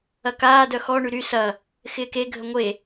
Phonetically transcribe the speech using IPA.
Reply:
ɐ k aː d œ x ɔ ɳ y ɾ y s ɐ | x ɪː k e ɡʱ ə ŋʷ e

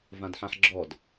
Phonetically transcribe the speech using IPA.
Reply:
v ã d ħ ã ħ ɡ͡ǁ ɔ d

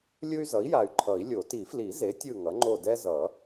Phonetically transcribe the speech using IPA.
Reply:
lʲ ɯ˦ y̯ z ʌ˩˥ i̯ j a˨ y̯ ǃʰ ʌ˨˩˦ i̯ lʲ o˨˩˦ t i˨˩˦ f l i˨˩˦ z e˩˥ tʲ ɯ˦˨ ŋ ʌ˩˥ ŋ͡ǃ o˦˨ d ɛ˦ z ʌ˨˩˦

